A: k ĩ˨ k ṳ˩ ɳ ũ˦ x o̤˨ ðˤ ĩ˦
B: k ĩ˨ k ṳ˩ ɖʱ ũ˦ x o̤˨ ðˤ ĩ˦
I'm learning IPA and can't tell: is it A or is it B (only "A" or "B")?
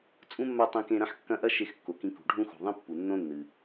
B